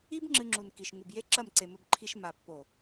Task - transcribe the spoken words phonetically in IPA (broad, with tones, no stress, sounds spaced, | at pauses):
i˦ b ŋ͡ǁ ɨ˧ ŋ͡ǁ u˨ n k i˨ ʃ ŋ u˨ b j e˦ ǁ ɐ˦˨ m ǀ e˨ m ɵ˧ b ǃʰ i˧ ʃ m a˨ pː o˨